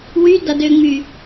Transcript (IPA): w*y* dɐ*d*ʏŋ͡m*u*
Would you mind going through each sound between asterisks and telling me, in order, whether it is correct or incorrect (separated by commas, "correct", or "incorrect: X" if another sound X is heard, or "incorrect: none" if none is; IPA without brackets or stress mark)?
correct, correct, incorrect: y